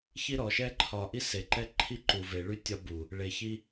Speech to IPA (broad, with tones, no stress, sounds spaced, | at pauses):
ç i˦ ɾ ɔ˨ ʃ ɛ˦ ǃʰ ɒ˨ ʔ i˦ s e˨ ǃ ɛ˦ ǃʰ i˦ ǃ u˨ v e˨ ɭ y˦ tʲ ɒ˦ b u˨ | ɭ e˨ ç i˦